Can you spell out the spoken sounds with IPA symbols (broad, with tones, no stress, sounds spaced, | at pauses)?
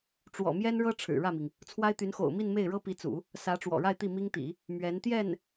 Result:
ʈ͡ʂ w ɔ̰˨˩ m j ɛ˥ n ɻ ɤ˥ ʈ͡ʂʰ ɻ̩˨˩ ɻ ä˥˩ m i˩ ŋ | t͡sʰ w a˥ ɪ̯ t̪ y˧˥ n x o̰˨˩ ʊ̯ m i˥˧ n m e˥˩ ɪ̯ ɻ ɤ˥ p i˧˥ t͡s ṵ˨˩˦ | s ä˧˥ ʈ͡ʂ w ɔ̰˨˩ ɻ a˥˧ ɪ̯ t̪ i˥˩ m i˥ ŋ t̪ ḭ˨˩˦ | m ɥ ɛ˧˥ n t̪ j ɛ˥˩ n